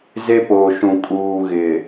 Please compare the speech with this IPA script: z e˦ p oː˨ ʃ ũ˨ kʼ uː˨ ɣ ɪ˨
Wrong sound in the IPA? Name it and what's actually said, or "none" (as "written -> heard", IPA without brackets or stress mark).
none